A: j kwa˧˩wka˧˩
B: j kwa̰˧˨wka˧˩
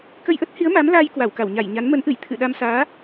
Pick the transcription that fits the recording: A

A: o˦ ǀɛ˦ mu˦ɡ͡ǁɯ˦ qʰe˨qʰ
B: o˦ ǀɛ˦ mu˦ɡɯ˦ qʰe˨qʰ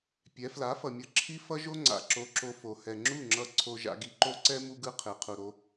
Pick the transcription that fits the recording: B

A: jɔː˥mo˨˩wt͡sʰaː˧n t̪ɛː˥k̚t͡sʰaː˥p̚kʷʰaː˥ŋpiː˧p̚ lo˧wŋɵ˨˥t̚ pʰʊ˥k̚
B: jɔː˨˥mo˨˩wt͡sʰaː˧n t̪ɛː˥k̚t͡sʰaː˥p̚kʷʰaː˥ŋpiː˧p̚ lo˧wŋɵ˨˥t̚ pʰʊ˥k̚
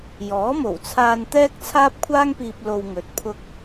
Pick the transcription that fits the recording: B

